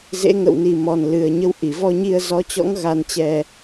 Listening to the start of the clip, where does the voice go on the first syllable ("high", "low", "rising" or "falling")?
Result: rising